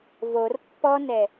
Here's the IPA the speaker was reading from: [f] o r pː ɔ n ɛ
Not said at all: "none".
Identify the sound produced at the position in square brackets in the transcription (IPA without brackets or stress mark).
v